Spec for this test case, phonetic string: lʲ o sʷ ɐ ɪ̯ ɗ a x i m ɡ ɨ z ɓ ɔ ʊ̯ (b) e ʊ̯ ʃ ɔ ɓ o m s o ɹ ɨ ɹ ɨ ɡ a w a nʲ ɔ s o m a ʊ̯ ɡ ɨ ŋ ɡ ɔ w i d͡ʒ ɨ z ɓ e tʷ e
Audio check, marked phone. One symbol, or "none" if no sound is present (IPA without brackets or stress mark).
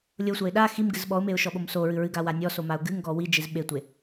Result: m